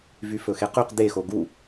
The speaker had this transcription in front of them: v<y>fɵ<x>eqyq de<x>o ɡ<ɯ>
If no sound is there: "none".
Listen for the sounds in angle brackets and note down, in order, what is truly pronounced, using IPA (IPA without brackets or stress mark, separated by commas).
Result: y, x, x, u